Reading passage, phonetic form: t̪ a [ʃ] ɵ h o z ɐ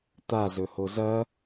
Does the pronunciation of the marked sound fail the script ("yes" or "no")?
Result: yes